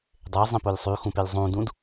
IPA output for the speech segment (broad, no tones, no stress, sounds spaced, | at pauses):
dˤ e zˤ ĩ p o lʲ sˤ y x ũ p e lʲ zˤ ũ d ũ d